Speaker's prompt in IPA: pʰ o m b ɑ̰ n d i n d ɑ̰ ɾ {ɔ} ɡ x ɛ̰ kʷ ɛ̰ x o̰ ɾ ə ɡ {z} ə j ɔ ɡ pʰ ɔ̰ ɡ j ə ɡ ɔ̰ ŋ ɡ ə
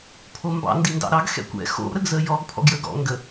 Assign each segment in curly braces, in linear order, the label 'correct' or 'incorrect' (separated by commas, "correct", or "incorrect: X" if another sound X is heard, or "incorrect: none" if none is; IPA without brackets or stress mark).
incorrect: ɑ, correct